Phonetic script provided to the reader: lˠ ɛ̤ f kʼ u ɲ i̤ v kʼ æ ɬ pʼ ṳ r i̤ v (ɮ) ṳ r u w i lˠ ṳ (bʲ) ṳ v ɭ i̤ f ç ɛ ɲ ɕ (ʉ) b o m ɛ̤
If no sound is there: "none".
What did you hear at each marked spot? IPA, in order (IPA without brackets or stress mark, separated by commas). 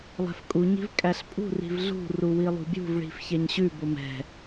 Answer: ɮ, bʲ, ʉ